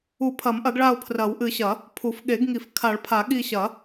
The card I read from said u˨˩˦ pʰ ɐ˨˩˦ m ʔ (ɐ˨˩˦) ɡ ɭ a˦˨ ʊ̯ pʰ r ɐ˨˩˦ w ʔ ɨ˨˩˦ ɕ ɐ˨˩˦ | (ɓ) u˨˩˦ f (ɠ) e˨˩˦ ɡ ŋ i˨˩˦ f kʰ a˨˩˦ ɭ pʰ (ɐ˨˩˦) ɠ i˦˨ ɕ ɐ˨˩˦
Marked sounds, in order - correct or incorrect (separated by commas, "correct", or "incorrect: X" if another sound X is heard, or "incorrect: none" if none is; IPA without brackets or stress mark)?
correct, incorrect: pʰ, correct, incorrect: a˨˩˦